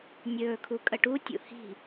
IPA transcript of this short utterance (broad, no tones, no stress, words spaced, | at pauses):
nʲɵːkʰu kʼəʈutʲṵ hi̤